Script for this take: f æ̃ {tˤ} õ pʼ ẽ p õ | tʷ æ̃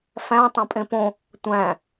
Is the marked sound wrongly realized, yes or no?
no